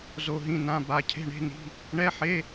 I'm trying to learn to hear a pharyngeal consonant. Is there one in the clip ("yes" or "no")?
yes